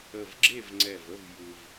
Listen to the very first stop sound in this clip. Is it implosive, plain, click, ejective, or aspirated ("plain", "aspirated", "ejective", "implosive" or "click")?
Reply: click